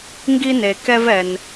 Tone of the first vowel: high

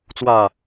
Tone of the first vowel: low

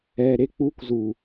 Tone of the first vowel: low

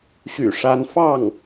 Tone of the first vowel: low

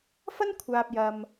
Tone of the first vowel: high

